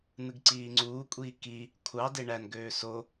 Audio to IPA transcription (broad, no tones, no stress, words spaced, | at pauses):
nɯɡǀiːŋ͡ǀuːkʷʼiː ki | kʷʰɑ deɳænɡøː so